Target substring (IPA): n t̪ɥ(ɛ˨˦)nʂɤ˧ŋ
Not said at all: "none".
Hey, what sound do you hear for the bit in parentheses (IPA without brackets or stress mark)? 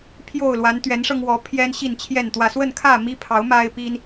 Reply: ɛ˨˦